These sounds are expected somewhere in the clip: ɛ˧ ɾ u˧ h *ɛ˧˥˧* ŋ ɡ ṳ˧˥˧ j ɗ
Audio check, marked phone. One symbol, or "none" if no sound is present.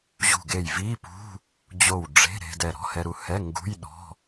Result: ɛ˧˥˧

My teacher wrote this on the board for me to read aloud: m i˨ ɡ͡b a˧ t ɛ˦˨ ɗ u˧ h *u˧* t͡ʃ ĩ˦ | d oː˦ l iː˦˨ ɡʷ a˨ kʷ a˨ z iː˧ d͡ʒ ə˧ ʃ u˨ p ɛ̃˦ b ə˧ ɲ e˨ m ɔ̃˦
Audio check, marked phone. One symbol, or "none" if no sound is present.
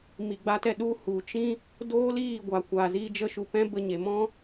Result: u˨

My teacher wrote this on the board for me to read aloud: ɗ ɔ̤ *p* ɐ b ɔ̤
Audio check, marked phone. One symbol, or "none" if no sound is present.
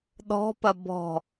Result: p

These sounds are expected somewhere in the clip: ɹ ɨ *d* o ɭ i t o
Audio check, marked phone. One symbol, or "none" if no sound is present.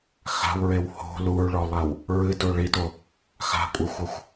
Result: d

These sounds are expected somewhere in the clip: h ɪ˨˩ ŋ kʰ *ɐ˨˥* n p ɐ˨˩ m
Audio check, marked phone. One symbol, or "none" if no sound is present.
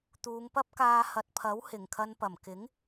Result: ɐ˧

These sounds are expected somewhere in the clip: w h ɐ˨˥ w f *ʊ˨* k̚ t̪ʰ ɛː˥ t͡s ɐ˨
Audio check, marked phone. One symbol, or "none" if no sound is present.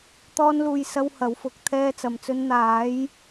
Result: ʊ˨˥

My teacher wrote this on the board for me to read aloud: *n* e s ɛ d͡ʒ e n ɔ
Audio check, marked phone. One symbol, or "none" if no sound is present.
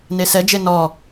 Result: n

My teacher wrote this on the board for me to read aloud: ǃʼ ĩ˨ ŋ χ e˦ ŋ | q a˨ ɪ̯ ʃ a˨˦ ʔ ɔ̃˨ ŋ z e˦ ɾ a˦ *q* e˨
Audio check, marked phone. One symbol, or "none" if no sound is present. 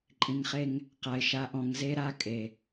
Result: kʼ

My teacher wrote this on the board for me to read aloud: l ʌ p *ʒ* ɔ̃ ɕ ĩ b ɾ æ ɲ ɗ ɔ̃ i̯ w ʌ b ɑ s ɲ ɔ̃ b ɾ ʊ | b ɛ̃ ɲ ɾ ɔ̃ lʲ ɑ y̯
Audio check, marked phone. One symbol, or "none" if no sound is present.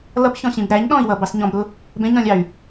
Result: ç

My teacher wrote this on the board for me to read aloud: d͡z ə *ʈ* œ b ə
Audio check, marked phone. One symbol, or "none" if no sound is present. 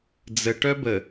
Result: ʈ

